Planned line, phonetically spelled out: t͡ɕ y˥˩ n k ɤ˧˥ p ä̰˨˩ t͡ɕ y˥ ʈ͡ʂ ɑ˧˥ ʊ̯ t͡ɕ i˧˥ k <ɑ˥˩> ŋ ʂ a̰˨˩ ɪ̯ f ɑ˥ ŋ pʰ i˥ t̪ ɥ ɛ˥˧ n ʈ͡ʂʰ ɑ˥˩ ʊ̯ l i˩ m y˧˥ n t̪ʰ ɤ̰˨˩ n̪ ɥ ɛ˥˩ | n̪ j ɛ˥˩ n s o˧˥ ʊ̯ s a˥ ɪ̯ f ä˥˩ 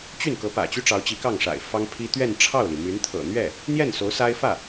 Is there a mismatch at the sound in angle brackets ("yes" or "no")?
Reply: no